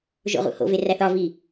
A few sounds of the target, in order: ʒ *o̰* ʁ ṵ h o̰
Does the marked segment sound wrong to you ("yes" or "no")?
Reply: no